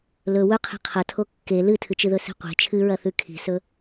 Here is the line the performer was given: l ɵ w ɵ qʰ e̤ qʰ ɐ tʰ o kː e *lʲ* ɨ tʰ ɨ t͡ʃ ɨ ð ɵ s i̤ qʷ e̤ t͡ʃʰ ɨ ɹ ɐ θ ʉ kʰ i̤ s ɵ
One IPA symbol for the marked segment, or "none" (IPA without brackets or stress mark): l